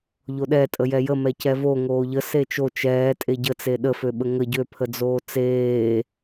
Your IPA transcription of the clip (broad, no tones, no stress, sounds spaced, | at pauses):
ʎ o ɗ ɛ tʼ ə j ɛ j ə m ɛ c ɛ v o ŋ oː ʎ ə s e t͡ʃ o t͡ʃ ɛː tʼ e ɟ ə t͡s e ɗ ə f ø ɓ ə ŋ ə ɟ ø pʰ ə d͡z oː t͡s eː